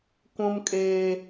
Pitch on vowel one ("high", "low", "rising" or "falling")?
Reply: high